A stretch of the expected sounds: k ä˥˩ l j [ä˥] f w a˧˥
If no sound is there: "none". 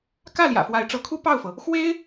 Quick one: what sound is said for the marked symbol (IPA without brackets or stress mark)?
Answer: ä̰˨˩